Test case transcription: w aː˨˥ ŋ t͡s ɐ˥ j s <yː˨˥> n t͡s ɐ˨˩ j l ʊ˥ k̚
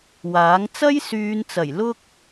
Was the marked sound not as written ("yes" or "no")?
yes